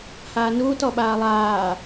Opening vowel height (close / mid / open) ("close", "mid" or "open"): open